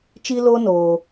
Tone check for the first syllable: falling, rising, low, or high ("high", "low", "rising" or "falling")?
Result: high